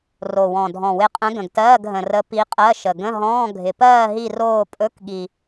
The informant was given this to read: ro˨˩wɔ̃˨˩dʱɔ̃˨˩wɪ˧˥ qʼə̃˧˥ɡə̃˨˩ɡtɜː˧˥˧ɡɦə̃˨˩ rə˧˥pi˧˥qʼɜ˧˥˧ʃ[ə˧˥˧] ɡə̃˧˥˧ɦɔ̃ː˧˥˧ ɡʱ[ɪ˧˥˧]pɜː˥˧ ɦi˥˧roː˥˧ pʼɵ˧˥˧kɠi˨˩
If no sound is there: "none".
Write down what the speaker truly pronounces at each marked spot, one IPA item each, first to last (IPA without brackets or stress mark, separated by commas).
ə˨˩, ɪ˨˩